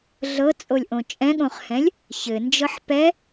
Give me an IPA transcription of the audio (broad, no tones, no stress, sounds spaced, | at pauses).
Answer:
ɮ ɤ t͡sʼ o lʲ ʔ õ t͡ʃʼ ɛ̃ ɠ õ χ h ɛ̃ lʲ | ç ɘ n d͡ʒ ɤ ħ p ɛ